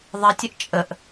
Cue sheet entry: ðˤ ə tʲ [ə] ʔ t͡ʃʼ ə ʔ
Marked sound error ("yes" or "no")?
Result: no